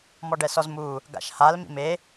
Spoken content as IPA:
m ɔ ɖ ɛ s ɔ z m u | ɡ a̰ ʃ h a l m ḭ m e

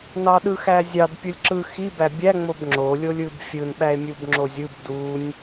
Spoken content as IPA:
n ɑ ɗ ɯ x æ zʲ ɑ d pʲ u lʲ ǁ ɯ x i b æ bʲ æ ŋ͡m o b ŋ͡ǁ o lʲ o lʲ ɯ b fʲ ɯ n ɓ æ e̯ mʲ u b ŋ͡ǁ o zʲ ɯ b d u nʲ

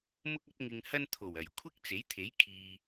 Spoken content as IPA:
m ʊ˥ k̚ ɐ˥ t̚ ŋ ɪ˧ ŋ h ɐ˥ n t̪ʰ o˨˩ w ɐ˨˩ j kʷʰ ɪ˥ k̚ t͡s e˨˥ j t̪ʰ e˨˥ j kʰ iː˨

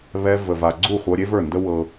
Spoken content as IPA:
β ɛ˧ v ə˨ v a˨ ɡ͡ǀ u˦˨ χʷ ɤ˧ ɾʲ e˦ v ə˞˦˨ n d ə˦ w ɤ˦

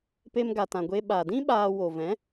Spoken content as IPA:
p e˧ m ɡ a˨ t ã˨ ɡʷ e˧ ɓ a˨ d ĩ˦ ɓ aː˧ w o˨ v ɛ̃˨˦

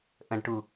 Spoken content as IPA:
ʔ ə̃ ɖ ʈ u

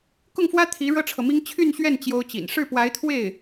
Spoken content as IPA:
k ʊ˥˩ ŋ f w ä˥ t̪ʰ i˧˥ ɻ ɤ˥ ʈ͡ʂʰ ɤ˨ m i˥ ŋ t͡ɕʰ y˥˧ n ɕ ɥ ɛ˥˩ n t͡ɕ j o˥ ʊ̯ t͡ɕ ḭ˨˩ n ʂ ɻ̩˥˩ p w a˧˥ ɪ̯ t̪ʰ w e˥˩ ɪ̯

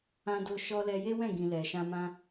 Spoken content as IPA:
ã˧ d o˧ ʃ ɔ˧ l ɛ˧ j e˦ w ɛ̃˦˨ ɡ ĩ˨ l ɛ˨ ʃ ã˧ m ã˧

